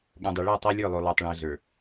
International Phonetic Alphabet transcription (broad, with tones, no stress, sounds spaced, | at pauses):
ɠ õ˨ dˤ ɛ˨ ɭ ə˦˨ ʊ̯ tˤ ə˞˦ lʲ ə˞˦˨ lˠ o˨ lˠ ə˞˨ tˤ ɭ õ˨ ə̯ ɮ ə˞˨